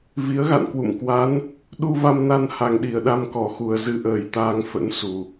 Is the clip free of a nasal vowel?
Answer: yes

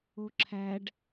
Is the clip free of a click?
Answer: no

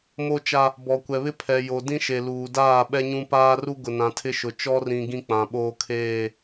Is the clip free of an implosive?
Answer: no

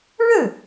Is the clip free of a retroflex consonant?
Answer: no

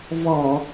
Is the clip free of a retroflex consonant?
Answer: yes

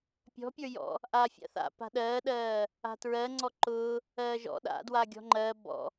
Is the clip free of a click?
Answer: no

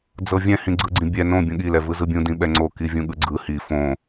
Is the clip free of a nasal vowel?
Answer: no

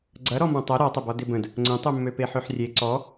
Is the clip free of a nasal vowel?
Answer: no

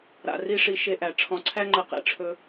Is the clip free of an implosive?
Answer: yes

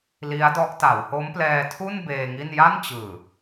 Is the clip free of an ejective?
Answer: yes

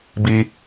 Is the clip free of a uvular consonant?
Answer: yes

